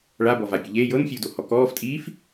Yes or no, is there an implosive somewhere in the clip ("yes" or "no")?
no